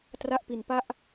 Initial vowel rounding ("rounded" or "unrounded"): unrounded